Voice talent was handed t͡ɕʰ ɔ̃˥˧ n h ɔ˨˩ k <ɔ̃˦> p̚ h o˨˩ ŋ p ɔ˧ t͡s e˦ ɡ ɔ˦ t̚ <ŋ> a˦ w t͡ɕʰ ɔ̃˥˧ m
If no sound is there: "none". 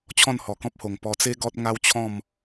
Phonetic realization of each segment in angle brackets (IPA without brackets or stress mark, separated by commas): ɔ̃˦, ŋ